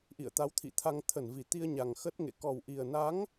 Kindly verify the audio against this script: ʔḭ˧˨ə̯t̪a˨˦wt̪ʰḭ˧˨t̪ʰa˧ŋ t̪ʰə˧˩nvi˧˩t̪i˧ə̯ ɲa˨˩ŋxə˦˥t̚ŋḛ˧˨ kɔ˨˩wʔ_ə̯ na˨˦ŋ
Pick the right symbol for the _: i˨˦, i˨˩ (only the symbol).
i˨˩